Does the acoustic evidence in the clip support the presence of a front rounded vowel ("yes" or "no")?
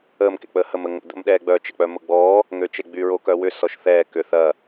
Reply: yes